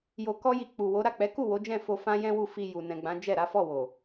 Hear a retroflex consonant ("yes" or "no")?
no